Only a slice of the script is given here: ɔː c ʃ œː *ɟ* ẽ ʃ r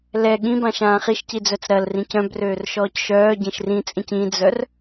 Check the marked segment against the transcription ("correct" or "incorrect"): correct